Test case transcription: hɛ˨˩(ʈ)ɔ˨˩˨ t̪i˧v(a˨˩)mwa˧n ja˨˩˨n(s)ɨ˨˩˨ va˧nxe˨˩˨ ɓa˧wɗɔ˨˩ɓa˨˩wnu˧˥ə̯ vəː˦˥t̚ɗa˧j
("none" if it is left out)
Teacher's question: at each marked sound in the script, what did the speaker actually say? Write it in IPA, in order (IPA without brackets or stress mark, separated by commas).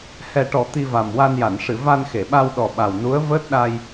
ʈ, a˨˩, ʂ